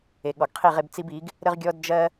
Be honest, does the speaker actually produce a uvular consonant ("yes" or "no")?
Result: yes